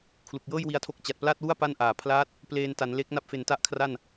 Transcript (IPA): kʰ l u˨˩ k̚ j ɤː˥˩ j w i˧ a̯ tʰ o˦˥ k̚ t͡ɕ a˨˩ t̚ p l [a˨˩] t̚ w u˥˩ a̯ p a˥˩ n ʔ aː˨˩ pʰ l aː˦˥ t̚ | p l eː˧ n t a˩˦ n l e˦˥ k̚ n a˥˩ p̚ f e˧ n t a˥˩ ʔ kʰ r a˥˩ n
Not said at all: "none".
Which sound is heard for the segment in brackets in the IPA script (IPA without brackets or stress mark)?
a˥˩